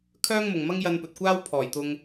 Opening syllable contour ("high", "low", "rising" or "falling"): high